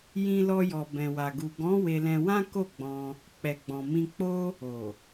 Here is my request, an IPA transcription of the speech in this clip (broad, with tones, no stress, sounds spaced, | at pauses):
j ĩ˧ l ɔ˧ j ɔ˨ b ɛ̃˨ w a˨ ɡ u˨ ɡ ɔ̃˨˦ w e˧ l ɛ̃˧ w ã˦ k o˦˨ ɡ͡b ɔ̃˧ | k͡p ɛ˨ ɡ͡b ɔ̃˨ m ĩ˧ k͡p o˧ | o˨